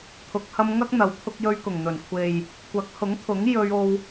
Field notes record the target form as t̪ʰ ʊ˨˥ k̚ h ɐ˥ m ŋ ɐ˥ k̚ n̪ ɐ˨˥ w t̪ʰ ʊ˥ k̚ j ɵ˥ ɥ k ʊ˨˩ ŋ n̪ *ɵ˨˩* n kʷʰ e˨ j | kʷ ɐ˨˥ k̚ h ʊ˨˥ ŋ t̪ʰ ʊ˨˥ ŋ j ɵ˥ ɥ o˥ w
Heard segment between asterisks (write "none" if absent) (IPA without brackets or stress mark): ɵ˨˩